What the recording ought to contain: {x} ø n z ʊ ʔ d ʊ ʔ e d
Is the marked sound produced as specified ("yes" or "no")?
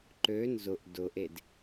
no